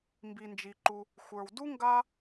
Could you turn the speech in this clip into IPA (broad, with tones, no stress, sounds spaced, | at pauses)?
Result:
m b i˩ n d͡ʒ i˩ ǃ u˩ | xʷ ə˞˩ w d u˥ ŋ ɡ a˥